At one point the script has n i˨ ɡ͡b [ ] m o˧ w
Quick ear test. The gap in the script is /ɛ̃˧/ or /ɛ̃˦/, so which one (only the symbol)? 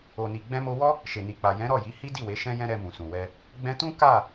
ɛ̃˧